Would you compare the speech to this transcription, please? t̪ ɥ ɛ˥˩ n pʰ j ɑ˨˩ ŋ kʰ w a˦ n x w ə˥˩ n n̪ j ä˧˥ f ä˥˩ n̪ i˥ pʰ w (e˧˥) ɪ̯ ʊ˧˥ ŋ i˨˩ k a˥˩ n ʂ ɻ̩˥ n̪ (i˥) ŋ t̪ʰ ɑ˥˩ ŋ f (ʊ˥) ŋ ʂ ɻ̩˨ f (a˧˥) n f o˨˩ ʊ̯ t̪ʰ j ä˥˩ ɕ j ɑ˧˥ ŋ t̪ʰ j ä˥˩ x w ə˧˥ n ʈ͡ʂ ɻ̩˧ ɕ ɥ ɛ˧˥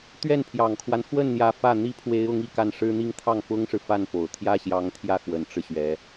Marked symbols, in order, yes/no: yes, yes, yes, no

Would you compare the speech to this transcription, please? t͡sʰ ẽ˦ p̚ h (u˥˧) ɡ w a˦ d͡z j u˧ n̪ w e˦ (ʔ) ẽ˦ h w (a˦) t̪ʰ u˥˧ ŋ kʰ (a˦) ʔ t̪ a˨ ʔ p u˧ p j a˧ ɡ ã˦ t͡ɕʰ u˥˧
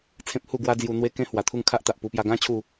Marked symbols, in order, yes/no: yes, no, no, yes

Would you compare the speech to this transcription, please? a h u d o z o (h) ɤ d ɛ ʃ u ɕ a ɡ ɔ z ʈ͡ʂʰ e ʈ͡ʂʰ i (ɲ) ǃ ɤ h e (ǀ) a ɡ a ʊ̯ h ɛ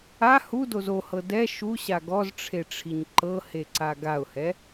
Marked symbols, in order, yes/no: yes, yes, yes

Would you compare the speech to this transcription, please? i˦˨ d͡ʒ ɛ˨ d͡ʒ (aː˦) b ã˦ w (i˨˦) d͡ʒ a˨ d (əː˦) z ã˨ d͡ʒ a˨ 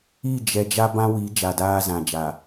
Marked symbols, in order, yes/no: no, yes, no

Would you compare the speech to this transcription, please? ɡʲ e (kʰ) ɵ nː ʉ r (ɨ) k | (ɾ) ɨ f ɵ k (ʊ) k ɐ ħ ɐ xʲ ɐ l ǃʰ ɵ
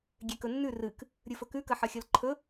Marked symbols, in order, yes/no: no, yes, no, no

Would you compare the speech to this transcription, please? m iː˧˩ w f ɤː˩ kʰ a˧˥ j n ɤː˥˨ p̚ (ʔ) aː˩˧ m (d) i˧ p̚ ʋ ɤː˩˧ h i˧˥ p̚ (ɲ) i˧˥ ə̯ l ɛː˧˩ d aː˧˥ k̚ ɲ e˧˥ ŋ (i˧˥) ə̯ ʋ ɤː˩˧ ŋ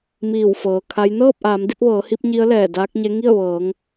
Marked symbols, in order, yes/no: yes, yes, yes, no

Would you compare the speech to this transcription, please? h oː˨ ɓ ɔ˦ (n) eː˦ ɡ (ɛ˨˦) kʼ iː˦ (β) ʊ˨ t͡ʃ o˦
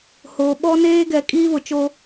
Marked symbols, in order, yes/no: yes, yes, yes

